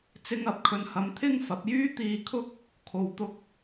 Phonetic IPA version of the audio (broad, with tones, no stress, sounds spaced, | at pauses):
t͡s ɪ˧ ŋ ɐ˨˥ p̚ kʰ ɵ˨ n h ɐ˨˧ m t̪ʰ ɪ˥ ŋ f ɐ˨˥ p̚ j yː˥ t̪ iː˧ kʰ ʊ˥ k̚ | kʰ o˨ w t̪ ʊ˧ k̚